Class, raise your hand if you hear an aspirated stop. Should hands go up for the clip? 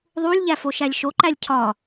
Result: yes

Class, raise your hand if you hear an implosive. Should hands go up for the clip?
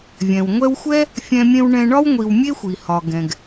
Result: no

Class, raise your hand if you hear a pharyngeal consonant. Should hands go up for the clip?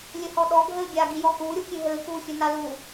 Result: no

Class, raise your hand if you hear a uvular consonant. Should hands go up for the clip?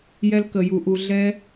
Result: no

